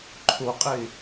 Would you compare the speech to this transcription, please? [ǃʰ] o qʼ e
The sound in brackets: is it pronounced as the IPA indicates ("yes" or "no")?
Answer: yes